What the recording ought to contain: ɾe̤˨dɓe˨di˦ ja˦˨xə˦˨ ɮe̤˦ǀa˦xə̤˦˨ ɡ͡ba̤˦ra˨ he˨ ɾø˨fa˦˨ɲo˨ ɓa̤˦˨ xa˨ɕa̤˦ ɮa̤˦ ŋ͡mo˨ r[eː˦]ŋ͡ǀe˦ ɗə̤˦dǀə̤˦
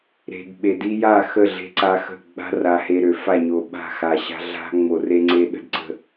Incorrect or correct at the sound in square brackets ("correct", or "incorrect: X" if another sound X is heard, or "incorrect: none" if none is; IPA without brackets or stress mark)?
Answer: incorrect: e˦